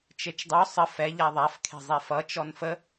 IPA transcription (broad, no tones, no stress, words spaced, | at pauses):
t͡ʃet͡ʃdˤo sˤə fɛ ʎaðˤaf kʰe̤zˤɛfʌ t͡ʃɔnfə